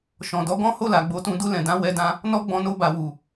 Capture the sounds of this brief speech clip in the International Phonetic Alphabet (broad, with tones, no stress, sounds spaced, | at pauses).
ʃ ɔ̃˨ d ɔ˨˦ ɡ ɔ̃˦ h o˦˨ l a˨ ɡ͡b o˨˦ t ũ˧ d u˧ l ɛ̃˨ d ã˨˦ w ɛ˧ d ã˧ | n ɔ˦ ɡ͡b ɔ̃˧ n o˧ b a˨ w u˨